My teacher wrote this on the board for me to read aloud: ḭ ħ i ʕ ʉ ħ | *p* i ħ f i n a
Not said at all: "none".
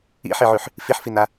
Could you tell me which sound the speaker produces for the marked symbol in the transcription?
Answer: f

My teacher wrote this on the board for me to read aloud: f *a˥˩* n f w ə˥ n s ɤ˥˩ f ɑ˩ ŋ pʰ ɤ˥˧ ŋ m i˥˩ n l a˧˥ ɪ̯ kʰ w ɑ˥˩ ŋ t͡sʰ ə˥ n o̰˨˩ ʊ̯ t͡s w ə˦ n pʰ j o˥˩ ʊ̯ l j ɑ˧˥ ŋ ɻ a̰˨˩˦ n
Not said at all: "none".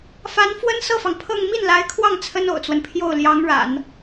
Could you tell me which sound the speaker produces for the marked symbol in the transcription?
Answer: a˧˥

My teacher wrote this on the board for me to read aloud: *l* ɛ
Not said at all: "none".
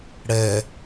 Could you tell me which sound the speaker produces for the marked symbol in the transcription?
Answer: ɽ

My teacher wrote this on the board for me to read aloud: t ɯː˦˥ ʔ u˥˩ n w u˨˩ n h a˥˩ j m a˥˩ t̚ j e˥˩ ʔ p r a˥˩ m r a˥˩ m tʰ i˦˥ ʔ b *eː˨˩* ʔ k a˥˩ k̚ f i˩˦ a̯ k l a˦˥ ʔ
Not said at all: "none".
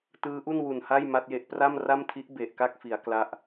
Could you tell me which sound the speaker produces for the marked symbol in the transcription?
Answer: e˨˩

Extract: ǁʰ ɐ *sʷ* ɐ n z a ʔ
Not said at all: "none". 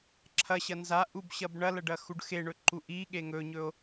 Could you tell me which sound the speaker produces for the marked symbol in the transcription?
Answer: ɕ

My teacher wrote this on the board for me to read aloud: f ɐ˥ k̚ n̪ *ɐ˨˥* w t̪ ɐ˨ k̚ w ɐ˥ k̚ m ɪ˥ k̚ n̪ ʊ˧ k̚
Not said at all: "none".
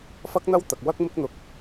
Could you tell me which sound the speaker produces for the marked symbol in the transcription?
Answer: ɐ˥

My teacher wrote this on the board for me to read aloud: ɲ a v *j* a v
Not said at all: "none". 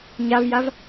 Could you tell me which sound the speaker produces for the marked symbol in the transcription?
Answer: j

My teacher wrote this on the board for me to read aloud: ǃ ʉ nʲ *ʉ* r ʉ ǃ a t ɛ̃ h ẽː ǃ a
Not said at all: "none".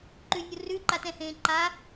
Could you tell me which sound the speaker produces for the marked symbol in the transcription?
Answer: u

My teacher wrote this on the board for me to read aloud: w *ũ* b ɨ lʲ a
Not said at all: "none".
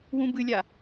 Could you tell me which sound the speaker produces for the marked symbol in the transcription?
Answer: ũ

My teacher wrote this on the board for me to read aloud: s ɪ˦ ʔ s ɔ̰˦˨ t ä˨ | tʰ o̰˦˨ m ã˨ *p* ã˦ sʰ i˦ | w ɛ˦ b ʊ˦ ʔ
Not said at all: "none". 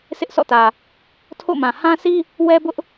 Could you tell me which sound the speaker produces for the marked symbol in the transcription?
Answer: h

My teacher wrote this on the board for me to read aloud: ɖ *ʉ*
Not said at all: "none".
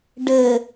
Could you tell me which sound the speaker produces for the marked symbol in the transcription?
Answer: ɘ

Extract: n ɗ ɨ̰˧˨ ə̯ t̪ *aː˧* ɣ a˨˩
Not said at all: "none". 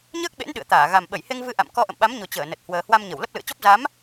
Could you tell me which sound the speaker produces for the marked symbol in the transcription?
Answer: aː˧˩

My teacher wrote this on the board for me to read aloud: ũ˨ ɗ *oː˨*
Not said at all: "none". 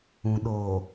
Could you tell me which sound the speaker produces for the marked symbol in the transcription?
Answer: oː˨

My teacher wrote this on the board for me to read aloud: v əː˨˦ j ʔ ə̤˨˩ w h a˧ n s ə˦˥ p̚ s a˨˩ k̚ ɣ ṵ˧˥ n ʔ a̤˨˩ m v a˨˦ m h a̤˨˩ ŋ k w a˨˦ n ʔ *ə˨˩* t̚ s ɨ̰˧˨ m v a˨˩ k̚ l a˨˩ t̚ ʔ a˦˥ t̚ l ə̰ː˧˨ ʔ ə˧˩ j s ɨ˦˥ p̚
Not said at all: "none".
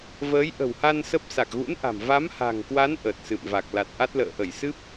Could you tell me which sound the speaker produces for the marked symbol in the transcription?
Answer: ə˨˩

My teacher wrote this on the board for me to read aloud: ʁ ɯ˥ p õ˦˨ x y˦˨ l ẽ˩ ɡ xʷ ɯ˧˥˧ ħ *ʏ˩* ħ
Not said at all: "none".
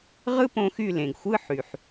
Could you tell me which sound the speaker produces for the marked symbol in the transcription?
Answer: y˩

